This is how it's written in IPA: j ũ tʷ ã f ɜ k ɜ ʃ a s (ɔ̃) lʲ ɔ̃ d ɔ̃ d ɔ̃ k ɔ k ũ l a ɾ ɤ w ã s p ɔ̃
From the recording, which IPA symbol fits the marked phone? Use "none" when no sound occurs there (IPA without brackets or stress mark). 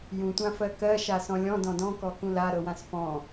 ɔ̃